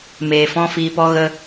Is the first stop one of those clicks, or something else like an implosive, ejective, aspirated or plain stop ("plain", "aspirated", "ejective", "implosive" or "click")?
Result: plain